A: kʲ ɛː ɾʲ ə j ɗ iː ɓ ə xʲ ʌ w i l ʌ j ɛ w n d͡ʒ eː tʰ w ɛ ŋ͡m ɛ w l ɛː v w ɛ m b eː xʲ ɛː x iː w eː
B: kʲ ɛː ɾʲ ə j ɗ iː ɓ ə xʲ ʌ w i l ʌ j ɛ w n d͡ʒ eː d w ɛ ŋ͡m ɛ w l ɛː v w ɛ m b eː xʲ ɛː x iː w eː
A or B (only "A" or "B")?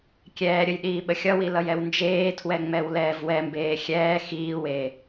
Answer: A